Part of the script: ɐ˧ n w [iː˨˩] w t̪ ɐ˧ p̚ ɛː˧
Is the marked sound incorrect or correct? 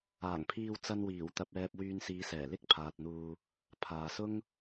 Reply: correct